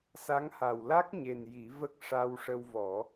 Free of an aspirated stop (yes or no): yes